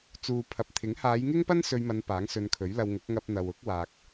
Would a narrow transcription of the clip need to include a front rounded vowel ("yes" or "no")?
no